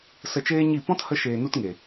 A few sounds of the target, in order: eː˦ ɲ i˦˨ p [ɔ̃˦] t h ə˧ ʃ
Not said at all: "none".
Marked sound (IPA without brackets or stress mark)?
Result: ɔ̃˦